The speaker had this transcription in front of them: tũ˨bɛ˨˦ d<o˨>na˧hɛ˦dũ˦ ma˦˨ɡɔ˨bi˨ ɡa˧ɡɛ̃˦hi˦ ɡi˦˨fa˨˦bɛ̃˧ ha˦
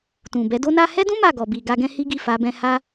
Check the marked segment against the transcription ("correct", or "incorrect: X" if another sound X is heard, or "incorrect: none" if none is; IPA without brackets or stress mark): incorrect: o˧